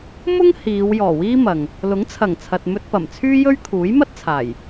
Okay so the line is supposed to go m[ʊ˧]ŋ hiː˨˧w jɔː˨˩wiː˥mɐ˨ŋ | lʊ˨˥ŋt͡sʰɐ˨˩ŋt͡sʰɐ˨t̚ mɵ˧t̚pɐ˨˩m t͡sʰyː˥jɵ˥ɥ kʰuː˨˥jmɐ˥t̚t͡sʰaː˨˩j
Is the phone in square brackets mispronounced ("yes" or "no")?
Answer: yes